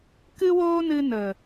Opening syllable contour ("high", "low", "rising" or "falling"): high